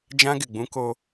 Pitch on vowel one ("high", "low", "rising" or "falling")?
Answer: high